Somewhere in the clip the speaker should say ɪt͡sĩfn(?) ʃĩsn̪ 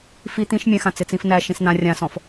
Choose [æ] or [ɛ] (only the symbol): æ